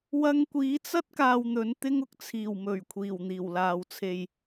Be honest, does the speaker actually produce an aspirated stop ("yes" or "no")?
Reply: yes